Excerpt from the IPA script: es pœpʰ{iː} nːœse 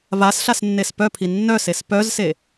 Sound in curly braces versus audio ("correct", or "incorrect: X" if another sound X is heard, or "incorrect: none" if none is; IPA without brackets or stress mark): incorrect: i